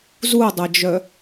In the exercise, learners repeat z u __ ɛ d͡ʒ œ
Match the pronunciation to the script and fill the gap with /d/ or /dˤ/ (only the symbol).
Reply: dˤ